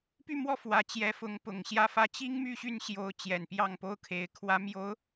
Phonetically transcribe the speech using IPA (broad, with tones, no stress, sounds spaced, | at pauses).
p y˥˧ m w ɔ˥˩ f w ä˧˥ t͡ɕ j ɛ˧˥ f ʊ˧˥ ŋ p ʊ˨˩ ŋ ɕ j ä˥ f ä˥˩ t͡ɕ i˥ ŋ m y˥˧ ɕ y˥˩ n ɕ j o˧˥ ʊ̯ t͡ɕ j ɛ˨˩ n p j ɑ˥˩ ŋ p o˥ ʊ̯ kʰ e˧˥ ɪ̯ kʰ w ä˧˥ m j o˧˥ ʊ̯